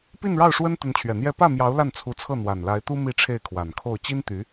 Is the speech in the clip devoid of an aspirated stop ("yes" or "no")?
no